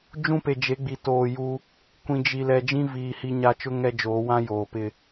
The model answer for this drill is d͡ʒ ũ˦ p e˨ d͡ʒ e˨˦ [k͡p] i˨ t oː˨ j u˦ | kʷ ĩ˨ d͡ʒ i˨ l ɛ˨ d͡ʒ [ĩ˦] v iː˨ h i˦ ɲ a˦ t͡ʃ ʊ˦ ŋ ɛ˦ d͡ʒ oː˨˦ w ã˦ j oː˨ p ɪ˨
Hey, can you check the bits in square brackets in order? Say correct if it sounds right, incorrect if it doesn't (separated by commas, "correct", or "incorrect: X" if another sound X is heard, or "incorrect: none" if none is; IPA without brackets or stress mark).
incorrect: ɡ͡b, correct